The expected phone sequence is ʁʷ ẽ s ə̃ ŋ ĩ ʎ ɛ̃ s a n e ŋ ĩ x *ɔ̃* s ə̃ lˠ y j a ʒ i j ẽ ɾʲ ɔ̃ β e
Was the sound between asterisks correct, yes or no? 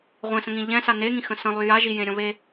no